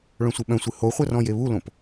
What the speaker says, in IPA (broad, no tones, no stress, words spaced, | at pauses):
ɭœ̃sʷɨɓœ̃sʷɨ hoχʷɜr ɔ̃jeβulõp